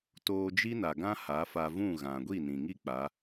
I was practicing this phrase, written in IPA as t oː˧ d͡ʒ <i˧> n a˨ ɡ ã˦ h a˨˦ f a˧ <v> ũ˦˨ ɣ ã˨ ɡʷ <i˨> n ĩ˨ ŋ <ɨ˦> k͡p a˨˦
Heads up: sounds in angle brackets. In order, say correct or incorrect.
incorrect, correct, incorrect, incorrect

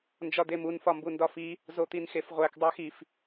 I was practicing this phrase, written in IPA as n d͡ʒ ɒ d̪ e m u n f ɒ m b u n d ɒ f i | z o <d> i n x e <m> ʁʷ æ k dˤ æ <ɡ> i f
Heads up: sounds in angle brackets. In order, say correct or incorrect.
incorrect, incorrect, incorrect

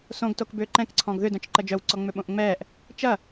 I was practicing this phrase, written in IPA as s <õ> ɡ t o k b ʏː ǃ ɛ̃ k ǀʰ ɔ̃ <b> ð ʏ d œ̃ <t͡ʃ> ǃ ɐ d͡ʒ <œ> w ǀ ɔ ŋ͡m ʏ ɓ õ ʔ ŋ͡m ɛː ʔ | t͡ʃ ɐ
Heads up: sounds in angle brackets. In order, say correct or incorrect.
correct, incorrect, correct, correct

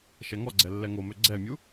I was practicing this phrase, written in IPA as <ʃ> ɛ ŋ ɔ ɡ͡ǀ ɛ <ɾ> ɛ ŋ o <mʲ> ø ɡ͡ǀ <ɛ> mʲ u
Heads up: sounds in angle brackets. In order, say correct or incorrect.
correct, incorrect, incorrect, correct

